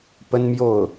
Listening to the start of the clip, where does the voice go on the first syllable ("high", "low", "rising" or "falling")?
high